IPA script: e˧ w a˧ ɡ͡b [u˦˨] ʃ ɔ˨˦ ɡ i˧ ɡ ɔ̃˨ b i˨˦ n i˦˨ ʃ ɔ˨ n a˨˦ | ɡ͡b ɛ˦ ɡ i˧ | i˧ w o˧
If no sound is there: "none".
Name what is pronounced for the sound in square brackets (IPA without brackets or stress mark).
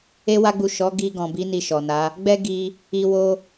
u˨